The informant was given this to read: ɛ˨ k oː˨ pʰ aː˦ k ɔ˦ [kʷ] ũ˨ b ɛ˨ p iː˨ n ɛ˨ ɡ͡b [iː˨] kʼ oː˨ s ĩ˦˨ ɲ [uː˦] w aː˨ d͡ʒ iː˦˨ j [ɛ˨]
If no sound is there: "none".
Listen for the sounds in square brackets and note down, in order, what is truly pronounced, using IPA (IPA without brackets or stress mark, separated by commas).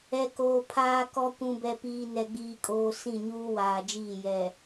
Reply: kʷ, iː˨, uː˦, ɛ˨